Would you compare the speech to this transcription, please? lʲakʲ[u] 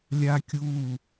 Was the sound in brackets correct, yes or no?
yes